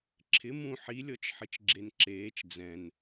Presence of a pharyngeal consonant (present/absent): present